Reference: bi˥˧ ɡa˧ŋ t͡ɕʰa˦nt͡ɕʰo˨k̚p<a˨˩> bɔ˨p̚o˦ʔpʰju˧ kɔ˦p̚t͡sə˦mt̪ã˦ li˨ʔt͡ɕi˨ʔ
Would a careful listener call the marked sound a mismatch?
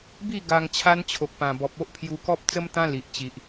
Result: yes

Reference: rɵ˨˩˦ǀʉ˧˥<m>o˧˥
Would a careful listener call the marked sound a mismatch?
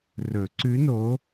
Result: yes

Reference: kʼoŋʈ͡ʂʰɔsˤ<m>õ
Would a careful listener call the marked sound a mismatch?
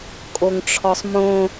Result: no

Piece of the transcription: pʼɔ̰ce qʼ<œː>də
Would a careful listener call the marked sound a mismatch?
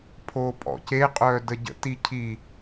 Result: no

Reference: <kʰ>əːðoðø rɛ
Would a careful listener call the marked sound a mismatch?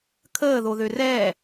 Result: no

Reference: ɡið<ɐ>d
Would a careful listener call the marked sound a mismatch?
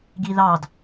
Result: yes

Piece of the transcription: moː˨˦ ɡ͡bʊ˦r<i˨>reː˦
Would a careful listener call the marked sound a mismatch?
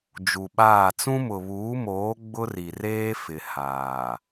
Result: no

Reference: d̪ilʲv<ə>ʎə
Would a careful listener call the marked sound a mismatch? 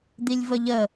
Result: no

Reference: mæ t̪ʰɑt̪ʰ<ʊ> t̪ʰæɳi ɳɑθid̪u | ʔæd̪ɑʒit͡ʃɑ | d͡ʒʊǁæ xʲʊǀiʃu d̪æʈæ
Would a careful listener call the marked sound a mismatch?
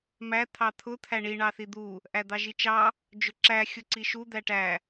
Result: no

